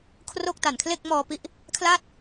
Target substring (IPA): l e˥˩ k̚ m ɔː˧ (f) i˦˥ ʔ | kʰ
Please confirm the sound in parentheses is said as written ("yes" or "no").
no